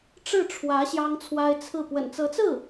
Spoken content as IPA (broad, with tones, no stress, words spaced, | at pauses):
ʈ͡ʂɻ̩˥˩ʈ͡ʂʰwä˧˥ ɕjɑ˥ŋt͡sʰwa˥ɪ̯ t͡sʰɹ̩˥˩ pwə̰˨˩nt͡sɤ˧˥t͡sɹ̩˥˩